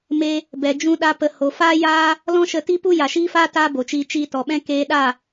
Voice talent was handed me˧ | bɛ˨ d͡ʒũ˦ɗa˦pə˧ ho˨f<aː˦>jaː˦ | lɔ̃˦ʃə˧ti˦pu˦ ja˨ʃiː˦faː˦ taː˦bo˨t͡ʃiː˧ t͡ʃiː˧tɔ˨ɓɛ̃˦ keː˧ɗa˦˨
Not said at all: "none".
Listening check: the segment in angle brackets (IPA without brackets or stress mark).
aː˦